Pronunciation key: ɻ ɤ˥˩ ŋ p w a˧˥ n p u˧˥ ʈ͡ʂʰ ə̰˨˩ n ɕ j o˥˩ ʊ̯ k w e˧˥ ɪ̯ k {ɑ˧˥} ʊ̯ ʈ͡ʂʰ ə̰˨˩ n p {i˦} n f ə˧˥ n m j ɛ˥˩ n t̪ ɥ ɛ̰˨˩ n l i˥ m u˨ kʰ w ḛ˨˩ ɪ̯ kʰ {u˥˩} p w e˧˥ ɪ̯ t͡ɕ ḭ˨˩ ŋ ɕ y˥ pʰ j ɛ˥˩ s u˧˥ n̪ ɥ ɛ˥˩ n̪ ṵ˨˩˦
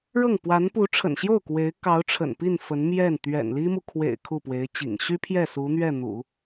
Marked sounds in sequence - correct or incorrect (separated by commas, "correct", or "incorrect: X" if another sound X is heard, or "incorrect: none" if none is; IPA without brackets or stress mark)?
correct, incorrect: i˥˩, correct